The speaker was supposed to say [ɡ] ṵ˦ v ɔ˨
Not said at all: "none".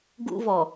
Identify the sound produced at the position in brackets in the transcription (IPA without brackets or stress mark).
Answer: ɡ